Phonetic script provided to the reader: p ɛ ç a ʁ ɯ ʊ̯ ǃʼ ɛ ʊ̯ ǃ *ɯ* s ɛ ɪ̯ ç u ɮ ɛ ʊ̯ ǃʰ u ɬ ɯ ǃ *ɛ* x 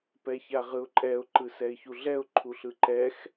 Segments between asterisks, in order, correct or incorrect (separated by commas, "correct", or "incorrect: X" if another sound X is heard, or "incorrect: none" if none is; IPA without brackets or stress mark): correct, correct